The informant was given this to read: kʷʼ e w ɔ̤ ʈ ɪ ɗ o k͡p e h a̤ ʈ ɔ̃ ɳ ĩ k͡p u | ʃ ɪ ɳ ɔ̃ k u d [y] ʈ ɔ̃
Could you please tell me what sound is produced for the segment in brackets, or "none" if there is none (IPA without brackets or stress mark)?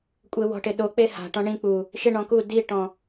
i